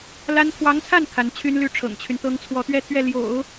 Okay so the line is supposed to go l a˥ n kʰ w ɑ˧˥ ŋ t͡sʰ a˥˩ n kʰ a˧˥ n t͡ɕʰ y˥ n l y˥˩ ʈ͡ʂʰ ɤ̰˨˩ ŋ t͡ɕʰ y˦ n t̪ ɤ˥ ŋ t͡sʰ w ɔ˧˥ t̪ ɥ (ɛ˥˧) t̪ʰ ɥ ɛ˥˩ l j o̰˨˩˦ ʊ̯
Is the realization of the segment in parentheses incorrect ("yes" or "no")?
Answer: no